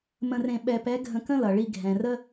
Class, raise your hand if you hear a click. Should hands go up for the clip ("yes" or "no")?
no